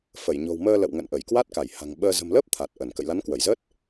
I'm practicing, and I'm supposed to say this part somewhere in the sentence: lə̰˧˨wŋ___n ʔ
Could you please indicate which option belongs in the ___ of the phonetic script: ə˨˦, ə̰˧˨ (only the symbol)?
ə̰˧˨